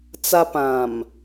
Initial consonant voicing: voiceless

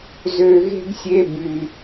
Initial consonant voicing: voiced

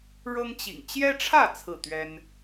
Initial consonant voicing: voiced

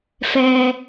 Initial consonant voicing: voiceless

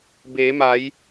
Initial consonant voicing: voiced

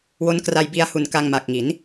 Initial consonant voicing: voiced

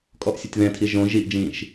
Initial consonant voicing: voiceless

